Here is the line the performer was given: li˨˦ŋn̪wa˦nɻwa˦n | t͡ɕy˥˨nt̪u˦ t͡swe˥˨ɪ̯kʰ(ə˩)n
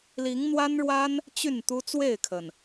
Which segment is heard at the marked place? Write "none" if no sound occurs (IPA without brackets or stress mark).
ə˩